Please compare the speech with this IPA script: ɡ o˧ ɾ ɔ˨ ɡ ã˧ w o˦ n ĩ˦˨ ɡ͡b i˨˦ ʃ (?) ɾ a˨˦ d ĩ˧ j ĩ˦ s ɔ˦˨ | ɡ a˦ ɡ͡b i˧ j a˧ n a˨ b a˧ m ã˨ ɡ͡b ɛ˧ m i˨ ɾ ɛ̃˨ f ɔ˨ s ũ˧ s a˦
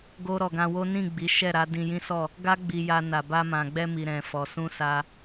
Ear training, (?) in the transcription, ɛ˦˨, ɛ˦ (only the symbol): ɛ˦˨